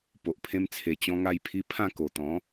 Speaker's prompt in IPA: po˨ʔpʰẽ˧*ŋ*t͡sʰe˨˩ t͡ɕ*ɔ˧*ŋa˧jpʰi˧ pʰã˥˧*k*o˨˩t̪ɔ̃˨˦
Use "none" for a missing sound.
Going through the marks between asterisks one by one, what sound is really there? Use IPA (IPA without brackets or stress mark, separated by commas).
m, ɔ̃˧, k